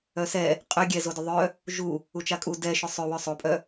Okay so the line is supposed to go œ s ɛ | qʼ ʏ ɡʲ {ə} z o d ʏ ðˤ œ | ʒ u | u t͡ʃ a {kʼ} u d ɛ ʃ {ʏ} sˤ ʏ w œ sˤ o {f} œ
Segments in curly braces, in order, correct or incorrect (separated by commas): incorrect, correct, correct, incorrect